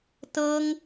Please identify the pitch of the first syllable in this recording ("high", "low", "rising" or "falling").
high